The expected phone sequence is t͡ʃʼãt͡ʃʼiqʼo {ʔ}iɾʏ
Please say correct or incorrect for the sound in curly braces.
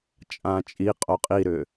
incorrect: qʼ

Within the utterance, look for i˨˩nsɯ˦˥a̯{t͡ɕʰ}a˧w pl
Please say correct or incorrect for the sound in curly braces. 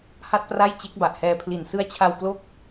correct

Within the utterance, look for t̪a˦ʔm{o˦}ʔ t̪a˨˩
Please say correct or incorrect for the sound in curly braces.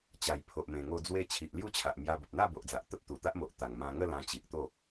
incorrect: o˨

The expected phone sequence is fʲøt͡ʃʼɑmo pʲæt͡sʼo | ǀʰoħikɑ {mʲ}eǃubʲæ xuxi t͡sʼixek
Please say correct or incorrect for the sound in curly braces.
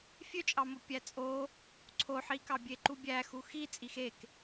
incorrect: bʲ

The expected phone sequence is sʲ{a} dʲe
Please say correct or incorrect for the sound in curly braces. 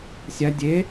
correct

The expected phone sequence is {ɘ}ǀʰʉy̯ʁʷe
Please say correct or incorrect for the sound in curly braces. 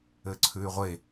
correct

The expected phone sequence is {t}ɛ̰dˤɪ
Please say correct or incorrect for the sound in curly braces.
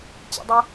incorrect: t͡ɕ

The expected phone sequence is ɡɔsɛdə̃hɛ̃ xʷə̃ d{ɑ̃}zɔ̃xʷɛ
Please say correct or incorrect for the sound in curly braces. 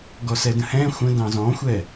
correct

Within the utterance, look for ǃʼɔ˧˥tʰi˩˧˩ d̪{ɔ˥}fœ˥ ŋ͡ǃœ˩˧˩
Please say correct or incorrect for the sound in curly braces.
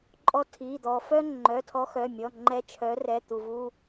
incorrect: ɔ˩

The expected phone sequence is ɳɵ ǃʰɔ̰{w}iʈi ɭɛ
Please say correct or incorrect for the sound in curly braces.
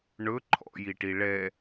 incorrect: j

